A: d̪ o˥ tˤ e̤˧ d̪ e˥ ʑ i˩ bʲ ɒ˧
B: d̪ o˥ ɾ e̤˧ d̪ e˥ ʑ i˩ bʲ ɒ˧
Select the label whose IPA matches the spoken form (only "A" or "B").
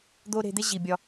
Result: B